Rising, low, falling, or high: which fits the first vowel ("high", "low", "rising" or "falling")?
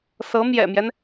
rising